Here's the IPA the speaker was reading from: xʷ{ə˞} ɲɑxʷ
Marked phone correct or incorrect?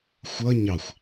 incorrect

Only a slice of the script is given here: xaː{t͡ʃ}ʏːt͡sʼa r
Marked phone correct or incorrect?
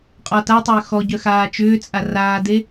correct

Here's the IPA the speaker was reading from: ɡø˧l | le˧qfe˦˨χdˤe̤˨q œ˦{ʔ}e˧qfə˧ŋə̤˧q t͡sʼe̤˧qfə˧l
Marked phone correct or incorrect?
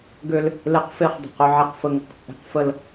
incorrect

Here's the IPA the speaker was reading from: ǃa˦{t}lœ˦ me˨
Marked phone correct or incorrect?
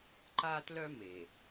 correct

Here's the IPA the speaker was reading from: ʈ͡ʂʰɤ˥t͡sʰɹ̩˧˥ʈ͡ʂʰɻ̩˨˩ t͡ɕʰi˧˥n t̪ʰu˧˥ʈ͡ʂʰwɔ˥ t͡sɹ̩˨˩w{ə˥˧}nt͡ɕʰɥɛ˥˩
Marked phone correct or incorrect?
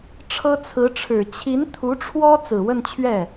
correct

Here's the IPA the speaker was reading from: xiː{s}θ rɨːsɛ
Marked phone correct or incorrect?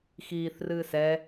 incorrect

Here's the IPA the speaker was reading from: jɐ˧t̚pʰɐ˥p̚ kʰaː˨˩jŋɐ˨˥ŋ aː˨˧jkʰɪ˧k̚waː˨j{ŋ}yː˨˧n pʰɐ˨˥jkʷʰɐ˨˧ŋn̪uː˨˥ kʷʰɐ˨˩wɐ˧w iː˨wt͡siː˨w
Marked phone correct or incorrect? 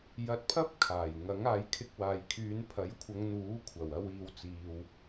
incorrect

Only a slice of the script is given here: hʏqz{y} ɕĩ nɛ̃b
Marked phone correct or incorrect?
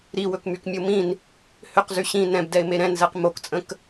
correct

